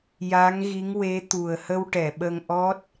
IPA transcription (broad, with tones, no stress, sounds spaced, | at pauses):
j a˧˥ ŋ ɣ i˧˥ ŋ w e˧˥ t̪ u˨˩ ə̯ h ə˧ w ʈ ɛ˨˩˨ ɓ ə˧ ŋ ʔ ɔ˦˥ t̚